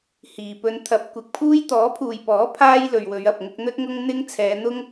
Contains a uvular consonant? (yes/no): no